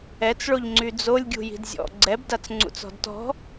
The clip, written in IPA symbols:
ɛt͡sɭoʎŋ͡ǀy d͡zolʲɡʲṳ ji̤dzʲɔ̰ ɡ͡ǀɛbdat͡s ŋ͡ǀṵt͡sɔ̤dtɔ̤

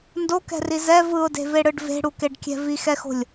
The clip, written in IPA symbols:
ndokɛ̤ri zɛ vɯʊ̯de̤veɽɯɖ ve̤ɽukeɖkʲɛ̤ vixɛxo̤lʲ

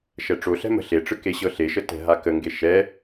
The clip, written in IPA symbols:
ʃɛʈ͡ʂoɬɛ̤ mə̤ɬeʈ͡ʂɯ keɕɤɬeʃə tɛ̤ɦakəŋɡe ʃɛ

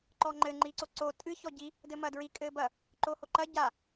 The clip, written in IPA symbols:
ǃɔŋ͡ǃɘ ŋ͡ǃiǀoǀo tʼɨ çɔɟi | dɘmɐdɹi kʼɘbɐ | ǃohoǃɐ ɟa

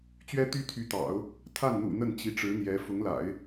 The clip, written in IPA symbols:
t͡ɕɥɛ˥t̪y˥ t̪ʰy˧˥t̪ɑ̰˨˩˦ʊ̯ | t̪ʰa˥˩nn̪ṵ˨˩ n̪ə˥˩nt͡ɕi˧˥ʈ͡ʂɻ̩˧˥n̪jɛ˧˥ fʊ˧˥ŋla̰˨˩˦ɪ̯

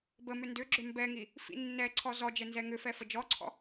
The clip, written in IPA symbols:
bəmʏ ndʏɡ͡ǁʏ mbɛŋi | fḭnːɛǀʰɔ zɔ d͡ʒɛnzɛŋʏfɛ fəd͡ʒɔǀʰɔ̰

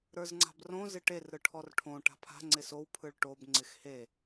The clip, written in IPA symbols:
ɾə˞zŋ͡ǀa̤brõ zɪʈer ɾɯʈʰɔrʈʰõ ʈa̤pʰa̤ ŋ͡ǀɪsow pʰɯɭʈob ŋ͡ǀɪxhe

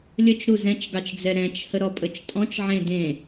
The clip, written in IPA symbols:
lʲət͡ʃɾu zɛ̃t͡ʃɡɑt͡ʃd͡zɛ ɾɛ̃t͡ʃhəɾɔpʼət͡ʃ tʼɔ̃t͡ʃʕẽ dẽ

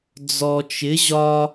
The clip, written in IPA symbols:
d͡zɔ˨t͡ʃɪ˨˦ ʑɒ˦

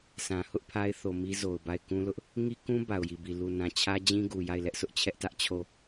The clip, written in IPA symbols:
sʰã˨hʊ˦ʔpʰa˦ɪ̯θo˨ mi˦zo˨ʊ̯ba˦˨ɪ̯ kũ˦lʊ˦ʔ | ŋi˦kũ˦ ba˨ʊ̯ji˨bi˨ lu˨nã˨ t͡ɕʰä˦d͡ʑĩ˦ɡu˨ ja˦˨ɪ̯ lɛ˦ʔsʰʊ˦ʔ t͡ɕʰɛ˦ʔtä˦ʔ t͡ɕʰo˦˨

